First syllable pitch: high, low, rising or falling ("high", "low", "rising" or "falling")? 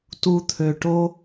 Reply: low